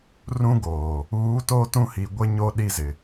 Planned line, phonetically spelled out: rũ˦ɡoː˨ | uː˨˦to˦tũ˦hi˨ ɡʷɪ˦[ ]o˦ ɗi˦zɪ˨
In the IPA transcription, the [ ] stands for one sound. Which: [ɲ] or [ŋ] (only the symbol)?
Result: ɲ